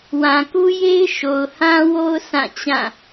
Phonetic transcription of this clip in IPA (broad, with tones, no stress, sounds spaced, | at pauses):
w ã˨ k u˦ j e˦ ɪ̯ ʃ o˨ ʊ̯ h ã˦ w o˦ ʊ̯ sʰ ã˦˨ t͡ɕ ã˦˨